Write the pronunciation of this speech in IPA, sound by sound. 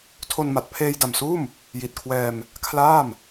tʰ o˧ n m a˨˩ t̚ pʰ eː˧ j d a˨˩ m s uː˥˩ m | j i˨˩ t̚ kʰ w ɛː˧ m | kʰ l aː˥˩ m

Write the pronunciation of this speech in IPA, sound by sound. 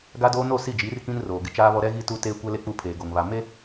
ɡ a˦ d oː˦ n o˦˨ s i˦˨ d͡ʒ iː˨˦ r k ĩ˦ n r oː˨ ɡ ɪ˦ t͡ʃ aː˦ β ɔ˦ ɾ ɛ˦ ɣ i˦ t u˦ t eː˦ kʷ ɛ˦ l e˦ k͡p u˦ pʰ eː˨ ɡ o˨ ŋ β a˨ m e˦

